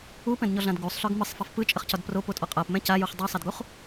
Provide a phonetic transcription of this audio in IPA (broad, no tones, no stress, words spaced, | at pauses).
upɛ̃dɲɔɮãd ɡusˤɬœɡ mɯsˤfaf pɯt͡ʃʼəχcɒd propotʼɔ qʼapmɛ̃ cajuχ dˤusˤadɡuχ